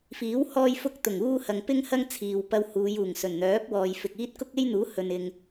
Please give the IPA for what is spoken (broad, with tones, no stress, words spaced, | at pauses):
fiː˨˥w hɔː˥jfʊ˥k̚t̪ʊ˨˩ŋuː˥ hɐ˨ŋpɪ˥ŋ hɐ˥ŋt͡sʰiː˨w pɐ˧whuː˨˧juː˨˩ŋsɵ˨˩n n̪œː˨˥p̚wɔː˨jfɪ˨k̚iː˥t̚ kʊ˥k̚e˥jn̪uː˨˥ hɵ˨nɪ˨ŋ